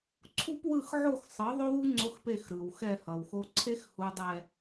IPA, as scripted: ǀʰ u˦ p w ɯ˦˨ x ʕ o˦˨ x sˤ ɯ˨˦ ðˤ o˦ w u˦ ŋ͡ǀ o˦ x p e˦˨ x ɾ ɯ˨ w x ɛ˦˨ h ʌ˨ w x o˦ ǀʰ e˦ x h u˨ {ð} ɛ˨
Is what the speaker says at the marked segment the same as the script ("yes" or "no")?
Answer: no